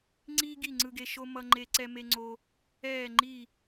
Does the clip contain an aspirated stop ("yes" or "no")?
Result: no